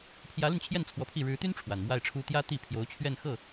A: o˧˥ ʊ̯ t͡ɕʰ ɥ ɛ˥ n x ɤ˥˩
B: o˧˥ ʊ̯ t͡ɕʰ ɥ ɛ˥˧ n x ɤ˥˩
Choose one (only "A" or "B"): B